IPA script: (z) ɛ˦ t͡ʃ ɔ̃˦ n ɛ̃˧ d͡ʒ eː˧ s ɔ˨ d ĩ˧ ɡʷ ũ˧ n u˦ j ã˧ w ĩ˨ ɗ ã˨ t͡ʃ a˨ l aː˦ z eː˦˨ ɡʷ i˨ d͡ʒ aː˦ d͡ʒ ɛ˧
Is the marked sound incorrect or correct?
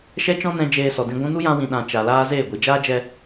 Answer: incorrect